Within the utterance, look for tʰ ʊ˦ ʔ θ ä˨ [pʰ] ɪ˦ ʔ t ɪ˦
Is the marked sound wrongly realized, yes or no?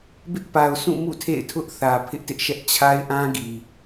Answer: no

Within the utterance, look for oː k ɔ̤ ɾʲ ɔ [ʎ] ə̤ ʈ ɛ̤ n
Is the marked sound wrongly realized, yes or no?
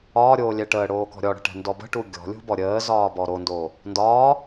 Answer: yes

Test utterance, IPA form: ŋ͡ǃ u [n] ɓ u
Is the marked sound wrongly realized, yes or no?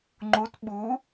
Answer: yes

